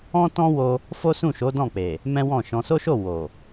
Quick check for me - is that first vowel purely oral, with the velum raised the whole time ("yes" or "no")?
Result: no